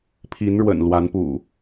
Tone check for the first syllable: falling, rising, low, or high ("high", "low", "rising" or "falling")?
rising